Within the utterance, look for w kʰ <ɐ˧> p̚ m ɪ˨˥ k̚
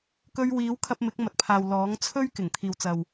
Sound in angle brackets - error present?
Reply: no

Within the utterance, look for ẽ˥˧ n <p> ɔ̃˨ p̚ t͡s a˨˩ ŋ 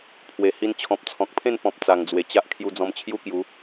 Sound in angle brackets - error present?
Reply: no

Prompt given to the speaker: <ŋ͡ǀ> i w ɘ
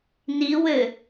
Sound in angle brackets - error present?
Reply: yes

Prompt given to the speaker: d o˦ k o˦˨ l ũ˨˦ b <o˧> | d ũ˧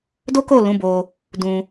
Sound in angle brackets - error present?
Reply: no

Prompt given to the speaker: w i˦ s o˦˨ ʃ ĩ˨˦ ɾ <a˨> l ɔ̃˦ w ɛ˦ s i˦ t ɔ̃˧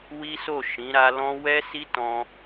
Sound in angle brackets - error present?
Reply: yes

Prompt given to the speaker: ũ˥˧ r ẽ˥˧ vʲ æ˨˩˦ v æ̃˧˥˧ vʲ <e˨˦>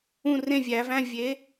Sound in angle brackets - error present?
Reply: no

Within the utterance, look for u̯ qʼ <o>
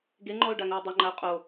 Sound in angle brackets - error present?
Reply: no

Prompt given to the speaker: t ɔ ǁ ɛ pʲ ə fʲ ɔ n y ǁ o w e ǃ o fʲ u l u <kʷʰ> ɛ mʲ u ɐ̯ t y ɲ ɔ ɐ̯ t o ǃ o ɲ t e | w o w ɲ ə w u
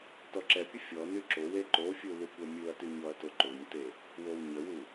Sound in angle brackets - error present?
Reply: yes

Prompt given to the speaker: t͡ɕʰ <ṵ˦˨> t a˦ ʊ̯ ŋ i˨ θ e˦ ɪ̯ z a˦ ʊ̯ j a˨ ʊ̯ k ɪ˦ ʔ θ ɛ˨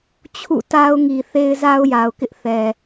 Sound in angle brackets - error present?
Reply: no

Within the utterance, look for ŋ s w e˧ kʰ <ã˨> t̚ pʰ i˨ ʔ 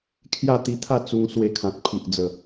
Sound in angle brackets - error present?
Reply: no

